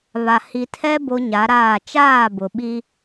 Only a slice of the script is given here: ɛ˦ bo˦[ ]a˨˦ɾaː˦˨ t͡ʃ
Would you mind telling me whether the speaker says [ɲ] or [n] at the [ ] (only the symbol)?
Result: ɲ